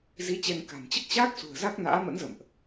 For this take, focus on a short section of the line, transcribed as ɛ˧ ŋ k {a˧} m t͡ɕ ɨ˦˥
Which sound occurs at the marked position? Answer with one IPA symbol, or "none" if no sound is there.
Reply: a̤˨˩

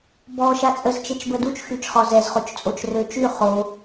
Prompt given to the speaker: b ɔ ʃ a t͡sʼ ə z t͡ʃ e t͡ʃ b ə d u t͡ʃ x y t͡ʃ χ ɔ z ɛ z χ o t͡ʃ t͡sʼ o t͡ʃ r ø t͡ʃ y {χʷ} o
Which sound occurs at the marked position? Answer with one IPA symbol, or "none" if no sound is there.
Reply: χ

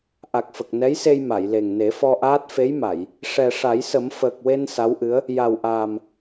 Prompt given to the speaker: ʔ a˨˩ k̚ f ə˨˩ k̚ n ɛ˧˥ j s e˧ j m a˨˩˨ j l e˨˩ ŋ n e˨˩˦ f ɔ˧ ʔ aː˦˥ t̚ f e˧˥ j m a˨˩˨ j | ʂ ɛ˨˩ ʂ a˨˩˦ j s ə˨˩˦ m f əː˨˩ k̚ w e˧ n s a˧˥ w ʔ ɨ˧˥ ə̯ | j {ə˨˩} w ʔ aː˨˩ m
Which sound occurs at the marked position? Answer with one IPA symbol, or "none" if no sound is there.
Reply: a˨˩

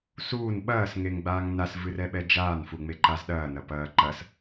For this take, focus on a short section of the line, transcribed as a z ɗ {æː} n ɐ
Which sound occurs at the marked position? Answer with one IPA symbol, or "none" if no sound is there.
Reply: ɐː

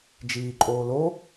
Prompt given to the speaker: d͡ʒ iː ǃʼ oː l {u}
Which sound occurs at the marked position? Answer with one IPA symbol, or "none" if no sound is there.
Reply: o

